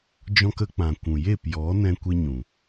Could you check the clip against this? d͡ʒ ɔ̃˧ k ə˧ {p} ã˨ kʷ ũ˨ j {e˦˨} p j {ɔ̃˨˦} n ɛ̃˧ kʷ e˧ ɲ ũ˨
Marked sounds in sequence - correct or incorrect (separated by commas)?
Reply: incorrect, correct, incorrect